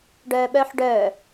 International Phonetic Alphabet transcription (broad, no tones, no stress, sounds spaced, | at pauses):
ɖ œː ɓ œː ħ ɖ œː